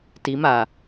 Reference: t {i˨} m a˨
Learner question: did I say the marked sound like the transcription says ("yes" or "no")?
no